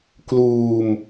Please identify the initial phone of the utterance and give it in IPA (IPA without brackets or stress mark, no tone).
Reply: k